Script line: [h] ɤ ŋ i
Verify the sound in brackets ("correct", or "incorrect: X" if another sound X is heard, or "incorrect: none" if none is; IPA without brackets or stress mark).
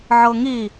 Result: incorrect: ʕ